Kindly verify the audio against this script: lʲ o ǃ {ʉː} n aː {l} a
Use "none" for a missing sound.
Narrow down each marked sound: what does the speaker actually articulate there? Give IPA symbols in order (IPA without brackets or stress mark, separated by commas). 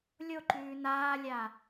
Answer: ʉː, lʲ